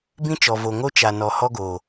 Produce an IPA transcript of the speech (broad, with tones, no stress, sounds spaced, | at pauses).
b ĩ˦ t͡ʃ ɔ˨ v o˨ ŋ o˦ t͡ʃ a˨ n ɔ˨ h ɔ˦ ɡ oː˨